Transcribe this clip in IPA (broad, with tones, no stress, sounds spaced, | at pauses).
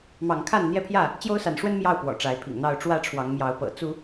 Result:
m ɑ˨˦ ŋ kʰ a˥˨ n n̪ j ɛ˦ pʰ j ä˥˨ | t͡ɕ j o˦ ʊ̯ s a˨˦ n ʂ w ə˦ n m j ɑ˥˨ ʊ̯ p w ɔ̰˨˩ ʈ͡ʂ a˨˦ ɪ̯ pʰ ḭ˨˩ ŋ n̪ ɑ˥˨ ʊ̯ ʈ͡ʂ w ä˥˨ ʈ͡ʂʰ w ɑ˨˦ ŋ m j ɑ˨˦ ʊ̯ p ɤ̰˨˩ t͡s u˨˦